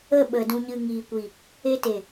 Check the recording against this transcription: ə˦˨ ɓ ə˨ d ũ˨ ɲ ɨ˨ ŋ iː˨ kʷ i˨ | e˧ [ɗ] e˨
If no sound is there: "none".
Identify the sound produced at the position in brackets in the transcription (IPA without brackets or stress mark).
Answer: t